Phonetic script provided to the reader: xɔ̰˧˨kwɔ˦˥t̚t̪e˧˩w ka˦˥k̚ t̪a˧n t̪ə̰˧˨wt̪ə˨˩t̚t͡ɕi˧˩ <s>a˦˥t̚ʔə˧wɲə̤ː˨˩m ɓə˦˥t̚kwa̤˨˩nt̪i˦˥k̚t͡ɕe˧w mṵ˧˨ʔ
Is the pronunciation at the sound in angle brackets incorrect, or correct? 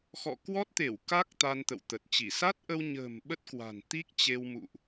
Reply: correct